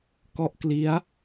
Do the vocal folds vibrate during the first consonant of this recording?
no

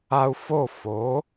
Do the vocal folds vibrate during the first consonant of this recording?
no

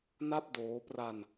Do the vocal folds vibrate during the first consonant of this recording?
yes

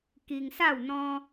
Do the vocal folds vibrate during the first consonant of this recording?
no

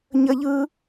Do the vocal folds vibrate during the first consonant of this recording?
yes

